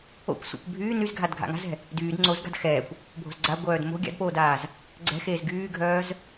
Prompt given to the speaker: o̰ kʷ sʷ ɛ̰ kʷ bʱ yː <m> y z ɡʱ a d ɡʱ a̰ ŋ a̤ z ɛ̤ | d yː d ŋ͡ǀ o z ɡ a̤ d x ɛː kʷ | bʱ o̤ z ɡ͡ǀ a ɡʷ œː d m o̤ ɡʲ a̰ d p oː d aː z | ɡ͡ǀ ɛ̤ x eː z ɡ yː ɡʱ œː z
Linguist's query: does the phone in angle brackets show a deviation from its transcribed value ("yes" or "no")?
yes